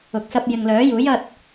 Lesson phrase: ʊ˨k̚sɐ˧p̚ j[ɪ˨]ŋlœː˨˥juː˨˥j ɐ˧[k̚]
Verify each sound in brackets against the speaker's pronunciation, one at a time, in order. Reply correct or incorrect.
correct, incorrect

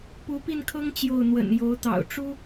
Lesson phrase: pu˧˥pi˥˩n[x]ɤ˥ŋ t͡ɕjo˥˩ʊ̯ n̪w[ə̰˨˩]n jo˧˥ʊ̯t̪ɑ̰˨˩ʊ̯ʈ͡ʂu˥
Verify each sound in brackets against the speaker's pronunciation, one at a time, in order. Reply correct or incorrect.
incorrect, correct

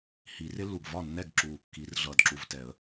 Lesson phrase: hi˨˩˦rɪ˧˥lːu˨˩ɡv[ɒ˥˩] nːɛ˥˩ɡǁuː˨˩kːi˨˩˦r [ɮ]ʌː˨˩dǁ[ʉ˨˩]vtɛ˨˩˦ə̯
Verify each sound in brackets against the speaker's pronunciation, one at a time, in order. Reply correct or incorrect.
correct, correct, incorrect

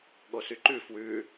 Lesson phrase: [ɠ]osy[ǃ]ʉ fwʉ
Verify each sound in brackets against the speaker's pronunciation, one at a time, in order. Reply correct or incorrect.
correct, correct

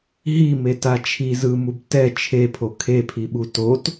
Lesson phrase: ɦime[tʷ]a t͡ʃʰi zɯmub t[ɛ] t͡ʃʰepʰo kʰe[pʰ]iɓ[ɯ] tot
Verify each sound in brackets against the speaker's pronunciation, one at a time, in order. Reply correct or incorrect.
incorrect, correct, correct, incorrect

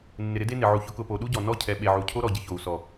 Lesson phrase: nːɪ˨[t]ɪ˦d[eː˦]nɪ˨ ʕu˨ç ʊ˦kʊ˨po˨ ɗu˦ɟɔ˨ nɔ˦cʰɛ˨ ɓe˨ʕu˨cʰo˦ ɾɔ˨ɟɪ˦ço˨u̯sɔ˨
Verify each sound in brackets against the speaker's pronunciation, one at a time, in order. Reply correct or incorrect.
incorrect, incorrect

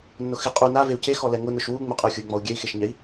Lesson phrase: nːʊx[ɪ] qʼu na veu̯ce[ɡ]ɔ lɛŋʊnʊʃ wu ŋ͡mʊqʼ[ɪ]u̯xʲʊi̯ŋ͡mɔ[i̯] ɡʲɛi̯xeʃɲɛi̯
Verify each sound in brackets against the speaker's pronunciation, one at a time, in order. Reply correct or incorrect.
correct, incorrect, correct, incorrect

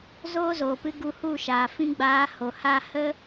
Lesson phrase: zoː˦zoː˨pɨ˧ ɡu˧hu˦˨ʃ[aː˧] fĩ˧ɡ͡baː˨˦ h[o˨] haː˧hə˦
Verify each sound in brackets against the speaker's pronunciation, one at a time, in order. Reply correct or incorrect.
incorrect, correct

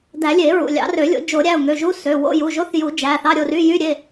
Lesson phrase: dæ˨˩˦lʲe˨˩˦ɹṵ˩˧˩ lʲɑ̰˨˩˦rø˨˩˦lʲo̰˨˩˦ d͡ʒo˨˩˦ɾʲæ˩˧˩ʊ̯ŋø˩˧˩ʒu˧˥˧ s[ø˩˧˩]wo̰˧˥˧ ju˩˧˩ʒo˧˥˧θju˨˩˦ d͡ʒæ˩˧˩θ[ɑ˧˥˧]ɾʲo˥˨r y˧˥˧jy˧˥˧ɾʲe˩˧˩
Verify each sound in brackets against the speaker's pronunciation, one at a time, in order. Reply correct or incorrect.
correct, correct

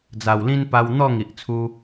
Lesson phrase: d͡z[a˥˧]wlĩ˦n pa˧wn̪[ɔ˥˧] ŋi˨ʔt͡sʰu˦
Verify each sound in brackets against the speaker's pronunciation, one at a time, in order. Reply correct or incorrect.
incorrect, correct

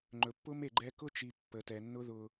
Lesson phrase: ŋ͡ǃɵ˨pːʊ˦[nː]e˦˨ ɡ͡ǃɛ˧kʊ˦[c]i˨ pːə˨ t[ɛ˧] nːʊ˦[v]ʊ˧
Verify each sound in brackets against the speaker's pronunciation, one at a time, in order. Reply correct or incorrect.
incorrect, incorrect, incorrect, incorrect

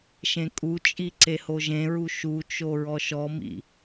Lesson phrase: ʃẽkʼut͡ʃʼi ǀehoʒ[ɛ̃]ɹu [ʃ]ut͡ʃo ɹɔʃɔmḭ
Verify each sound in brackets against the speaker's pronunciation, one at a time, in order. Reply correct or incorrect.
incorrect, correct

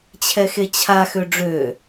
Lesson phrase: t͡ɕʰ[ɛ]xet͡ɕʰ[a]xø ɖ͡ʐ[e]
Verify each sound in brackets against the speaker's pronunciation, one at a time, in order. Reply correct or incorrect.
correct, correct, incorrect

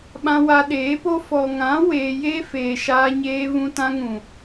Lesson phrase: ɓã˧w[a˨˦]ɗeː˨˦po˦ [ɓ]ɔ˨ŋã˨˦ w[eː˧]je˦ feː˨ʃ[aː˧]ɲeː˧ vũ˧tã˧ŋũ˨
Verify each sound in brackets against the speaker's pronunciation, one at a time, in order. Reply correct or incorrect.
incorrect, incorrect, correct, correct

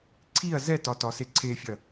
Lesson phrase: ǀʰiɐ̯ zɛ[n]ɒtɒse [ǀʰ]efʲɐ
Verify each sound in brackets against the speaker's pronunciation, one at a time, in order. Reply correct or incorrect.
incorrect, correct

